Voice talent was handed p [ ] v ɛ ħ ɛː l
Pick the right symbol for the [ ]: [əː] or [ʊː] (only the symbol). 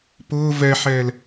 ʊː